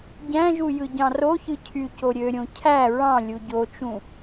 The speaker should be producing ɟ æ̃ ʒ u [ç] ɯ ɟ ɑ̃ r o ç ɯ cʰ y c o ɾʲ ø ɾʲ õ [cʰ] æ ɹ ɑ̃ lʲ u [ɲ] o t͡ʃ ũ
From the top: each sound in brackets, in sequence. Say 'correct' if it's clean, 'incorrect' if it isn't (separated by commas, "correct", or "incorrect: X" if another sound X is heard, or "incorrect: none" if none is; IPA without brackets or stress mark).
incorrect: j, correct, incorrect: ɟ